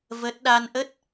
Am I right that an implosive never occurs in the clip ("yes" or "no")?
no